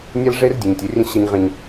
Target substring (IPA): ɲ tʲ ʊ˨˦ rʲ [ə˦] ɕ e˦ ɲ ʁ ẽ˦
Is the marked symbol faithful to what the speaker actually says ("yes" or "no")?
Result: no